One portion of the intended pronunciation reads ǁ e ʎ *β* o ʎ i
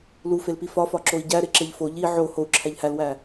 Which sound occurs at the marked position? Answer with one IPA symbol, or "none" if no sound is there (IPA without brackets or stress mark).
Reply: f